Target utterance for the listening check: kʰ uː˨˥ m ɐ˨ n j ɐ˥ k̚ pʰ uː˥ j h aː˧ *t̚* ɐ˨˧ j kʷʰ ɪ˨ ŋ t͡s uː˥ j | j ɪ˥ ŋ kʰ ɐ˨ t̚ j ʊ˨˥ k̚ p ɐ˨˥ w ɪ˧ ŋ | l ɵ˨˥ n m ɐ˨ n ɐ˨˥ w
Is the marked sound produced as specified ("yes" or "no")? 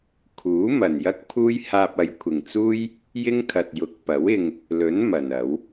no